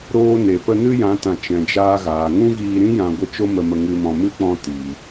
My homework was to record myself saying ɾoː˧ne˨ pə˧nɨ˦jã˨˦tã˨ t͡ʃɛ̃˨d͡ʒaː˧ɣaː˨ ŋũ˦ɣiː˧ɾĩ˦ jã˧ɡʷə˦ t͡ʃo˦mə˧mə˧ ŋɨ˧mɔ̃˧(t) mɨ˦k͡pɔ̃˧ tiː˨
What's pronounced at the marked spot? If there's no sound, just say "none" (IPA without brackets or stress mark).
none